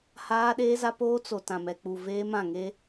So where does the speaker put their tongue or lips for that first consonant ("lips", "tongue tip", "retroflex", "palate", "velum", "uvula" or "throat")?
throat